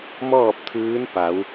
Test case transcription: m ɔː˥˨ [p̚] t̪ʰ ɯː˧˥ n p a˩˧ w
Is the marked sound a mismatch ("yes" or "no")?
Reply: no